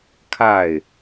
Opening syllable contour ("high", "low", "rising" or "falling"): falling